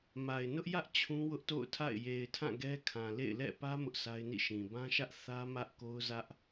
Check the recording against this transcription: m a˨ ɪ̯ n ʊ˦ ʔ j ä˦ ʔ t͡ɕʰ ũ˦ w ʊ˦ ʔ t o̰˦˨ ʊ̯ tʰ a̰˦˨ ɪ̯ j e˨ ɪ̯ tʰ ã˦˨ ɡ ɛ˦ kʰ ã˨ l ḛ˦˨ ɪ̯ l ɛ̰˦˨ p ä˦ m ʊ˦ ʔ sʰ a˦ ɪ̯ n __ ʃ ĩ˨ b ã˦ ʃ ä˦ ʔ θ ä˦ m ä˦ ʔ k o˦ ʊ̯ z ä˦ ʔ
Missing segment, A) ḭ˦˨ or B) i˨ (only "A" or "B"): A